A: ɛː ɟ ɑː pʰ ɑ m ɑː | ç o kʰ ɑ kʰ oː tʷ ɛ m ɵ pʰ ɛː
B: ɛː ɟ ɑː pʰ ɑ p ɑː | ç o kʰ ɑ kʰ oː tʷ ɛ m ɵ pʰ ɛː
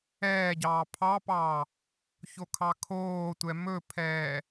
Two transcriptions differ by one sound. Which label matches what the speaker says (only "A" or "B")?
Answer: B